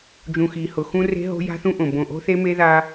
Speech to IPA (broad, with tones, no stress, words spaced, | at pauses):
d͡ʒũ˨xi˨hʊ˨ xũ˦re̤˦ɦo̤˦ ja̤˦θũ˦ʔõ˨ bõ˨ʔo̤˦ θe˦me˦ða˦